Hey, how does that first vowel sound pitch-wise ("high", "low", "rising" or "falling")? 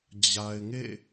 low